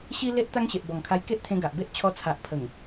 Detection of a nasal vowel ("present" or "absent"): present